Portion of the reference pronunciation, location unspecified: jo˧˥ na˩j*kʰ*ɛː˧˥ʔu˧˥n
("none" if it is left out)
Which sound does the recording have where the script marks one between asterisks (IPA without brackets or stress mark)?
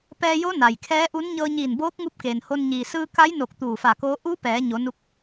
kʰ